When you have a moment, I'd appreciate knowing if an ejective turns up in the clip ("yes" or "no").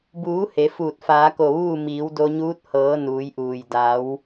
no